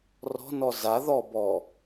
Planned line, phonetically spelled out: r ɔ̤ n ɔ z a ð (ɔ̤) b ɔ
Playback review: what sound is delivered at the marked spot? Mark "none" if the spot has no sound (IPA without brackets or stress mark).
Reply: ɔ